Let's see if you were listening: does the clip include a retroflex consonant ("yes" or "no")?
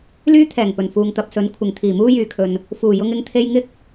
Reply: no